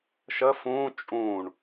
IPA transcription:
ʃ ə f ũ t͡ʃʼ ũ ɳ

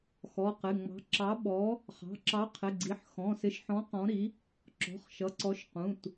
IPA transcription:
x ɔ˩˧˩ q ɪ˩˧˩ ŋ͡m ɑ̤˨˥ ǁ ɑ˨˥ ɓ ɔ˨˥ | χ ɑ̤˩˧˩ ǁ ɑ˨˥ qʰ ɪ˩˧˩ ɡ͡ǀ i˩˧˩ ħ x ɔ̃˩˧˩ s ɪ˨˥ ʃ ħ ɔ̃˨˥ q ɔ̃˨˥ ɾ i˨˥ | ǁ ɔ̤˩˧˩ χ ʃ ʌ˩˧˩ ǀ ɔ˨˥ ʃ q ũ˩˧˩ t

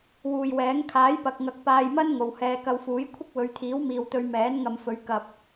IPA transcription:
w uː˨ j w ɛː˨˥ ŋ kʰ aː˨˥ j p ɐ˨ k̚ ŋ ɐ˨˥ k̚ p aː˧ j m ɐ˥ n ŋ o˨ w h ɛː˧ k ɐ˧ w f uː˨˥ j kʷʰ ɪ˥ k̚ w ɵ˨˧ ɥ t̪ʰ iː˨˥ w m iː˨ w t̪ ɵ˧ ɥ m ɛː˨˥ n ŋ ɐ˨ m f ɵ˨˧ ɥ k ɐ˨ p̚

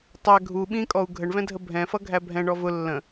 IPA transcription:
tˤ æ ɡʱ u ɓ ĩ kʼ ɔ u̯ ɡʱ ə ɳ v ɛ̃ dʱ ə bʱ ɛ̃ f ʌ ɡʱ æ bʱ ɛ̃ ɳ ɔ v ʊ lː ə̃

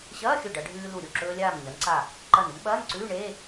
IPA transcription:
ɕ ɐː˧˥˧ xʲ ɵ˧˩ ɖ ɐ˩˧ ɖʱ ʉː˧ l u˧˩ ɾʲ u˥˩ ǁ ɵː˧ lʲ aː˧˩ m ɲ ɐ˩˧ n ǀ a˧˩ | ǃ ɐ˧˩ n u˥ m ɓ ɐː˧˥˧ n ǀ ʉː˧˥˧ ɳ eː˧˥˧

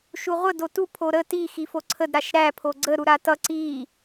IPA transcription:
ʃ u ʁʷ ə d o t u pʰ o ɾ ə t i x i f o ǀʰ ə d ɾ a ʃ ɾ æ pʰ o ɡ͡ǀ ə ɾ u ɾ a t ʌ ǀ i

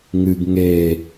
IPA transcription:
ŋ ɨ ɡ ŋ e

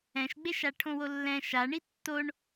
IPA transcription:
ɛ̃ ʃ ɡ͡b e ʃ a ʈʰ õ w o lː ɛ̃ ʃ a ɳ i tː o ɳ

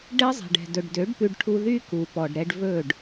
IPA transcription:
ɖ ɛ˦ zˤ ɛ̤˨ ɖ ɛ̤˨ d ɵ˨ ɖ d ø˨˦ ɖ p ʉ˧ ɖ ʈʰ u˧ ð y˦ k u˨ p ɔ˨ ɖ ɾ ɛ˧ ɖ v ɵ˦˨ ɖ

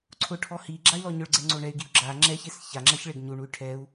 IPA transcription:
ǀʰ ʊ ʈʰ ɔ h i ɡ͡ǁ a y̯ l ɔ ɲ ʊ ɭ ɡ͡ǀ ɛ ŋ͡ǀ o ɳ ɛ y̯ ɡ i u̯ ɡ͡ǁ a ŋ͡ǁ ɛ ç e s ç a ŋ͡ǁ a ç ɭ e ɡ ɲ u ɳ u y̯ ʈʰ ɛ u̯

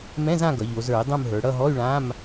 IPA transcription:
m ɛ̃˧˥˧ z ã˦˨ ɡ ʌ˩˧ ʎ o˩˧ z ə˞˧˩˧ i̯ dˤ ũ˦˨ m ɦ ə˞˩˧ ɽ ʌ˦˨ ɦ ɔ˧˥˧ y̯ ɭ ã˧˥˧ m

